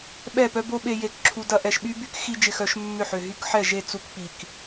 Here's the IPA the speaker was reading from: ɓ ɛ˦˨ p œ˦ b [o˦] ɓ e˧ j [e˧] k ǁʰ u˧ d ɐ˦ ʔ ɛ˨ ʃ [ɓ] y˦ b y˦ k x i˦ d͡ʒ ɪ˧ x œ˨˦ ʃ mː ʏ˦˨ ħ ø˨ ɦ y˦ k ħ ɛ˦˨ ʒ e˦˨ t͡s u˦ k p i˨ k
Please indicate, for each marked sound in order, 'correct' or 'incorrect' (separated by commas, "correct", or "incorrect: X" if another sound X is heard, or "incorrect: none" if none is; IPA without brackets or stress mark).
correct, correct, correct